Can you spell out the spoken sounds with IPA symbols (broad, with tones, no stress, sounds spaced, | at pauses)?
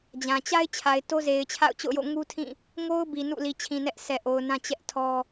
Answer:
d͡ʑ ã˨ t͡ɕ a˦ ɪ̯ t͡ɕʰ a˨ ɪ̯ t o˦ z e˨ ɪ̯ t͡ɕʰ a̰˦˨ ʊ̯ t͡ɕ o̰˦˨ ʊ̯ j o̰˦˨ ŋ u˦ tʰ ĩ˦˨ | ŋ o˦ ʊ̯ b i˨ n ṵ˦˨ l i˨ t͡ɕʰ ĩ˨ n ɛ˦ ʔ s ɛ˨ ʔ o˨ ʊ̯ n ã˦ t͡ɕ ɛ˦ ʔ tʰ ɔ˦